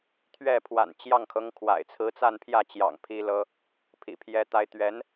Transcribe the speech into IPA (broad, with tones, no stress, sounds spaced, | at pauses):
t̪ʰ ɥ ɛ˥˩ pʰ w a̰˨˩ n t͡ɕ j ɑ˥˩ ŋ kʰ ɤ˧˥ ŋ kʰ w a̰˨˩ ɪ̯ t͡sʰ ɹ̩˧˥ t͡s a˥˧ n pʰ j ä˥˩ t͡ɕ j ɑ̰˨˩ ŋ pʰ i˥ l ɤ˥ | pʰ ḭ˨˩ pʰ j ɛ˥ t̪ a˥ ɪ̯ t̪ ɥ ɛ˧˥ n